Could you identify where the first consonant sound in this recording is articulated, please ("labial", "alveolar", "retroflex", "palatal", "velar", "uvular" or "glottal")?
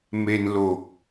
labial